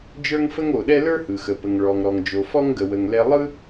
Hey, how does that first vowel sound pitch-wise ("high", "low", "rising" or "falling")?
high